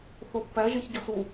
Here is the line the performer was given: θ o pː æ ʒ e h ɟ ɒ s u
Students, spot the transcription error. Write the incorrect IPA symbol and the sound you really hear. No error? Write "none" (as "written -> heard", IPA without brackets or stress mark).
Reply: h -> ç